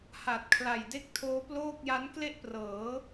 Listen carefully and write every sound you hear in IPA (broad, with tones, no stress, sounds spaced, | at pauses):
h a˨˩ t̚ kʰ l a˨˩ j d e˥˩ k̚ tʰ oː˦˥ p l oː˥˩ k̚ j a˦˥ n k l e˥˩ ʔ p r ɤː˩˦